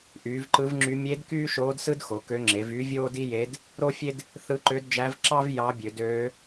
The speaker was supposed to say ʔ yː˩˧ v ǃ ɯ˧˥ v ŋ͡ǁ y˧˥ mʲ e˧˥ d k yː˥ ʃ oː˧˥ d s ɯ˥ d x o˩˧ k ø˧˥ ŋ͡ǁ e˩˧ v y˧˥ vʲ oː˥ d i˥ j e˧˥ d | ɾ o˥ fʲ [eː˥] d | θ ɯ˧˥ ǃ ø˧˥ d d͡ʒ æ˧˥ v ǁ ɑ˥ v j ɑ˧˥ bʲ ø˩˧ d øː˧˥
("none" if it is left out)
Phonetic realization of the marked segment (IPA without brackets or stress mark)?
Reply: e˥